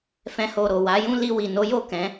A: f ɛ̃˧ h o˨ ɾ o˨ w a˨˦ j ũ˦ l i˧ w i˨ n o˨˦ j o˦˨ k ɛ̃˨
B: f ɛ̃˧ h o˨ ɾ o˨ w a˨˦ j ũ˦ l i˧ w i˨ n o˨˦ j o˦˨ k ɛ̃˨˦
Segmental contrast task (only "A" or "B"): B